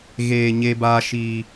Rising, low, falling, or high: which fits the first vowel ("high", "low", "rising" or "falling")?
low